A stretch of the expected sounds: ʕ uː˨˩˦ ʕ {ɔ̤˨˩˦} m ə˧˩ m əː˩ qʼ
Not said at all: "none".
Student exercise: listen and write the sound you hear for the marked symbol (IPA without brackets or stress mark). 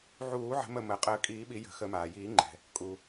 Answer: ə̤˨˩˦